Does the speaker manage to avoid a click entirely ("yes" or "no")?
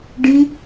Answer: yes